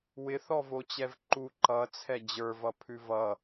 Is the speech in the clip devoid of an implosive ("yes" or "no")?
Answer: yes